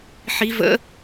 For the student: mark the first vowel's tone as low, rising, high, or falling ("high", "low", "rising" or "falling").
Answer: rising